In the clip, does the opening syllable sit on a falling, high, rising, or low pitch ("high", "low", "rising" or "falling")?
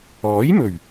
rising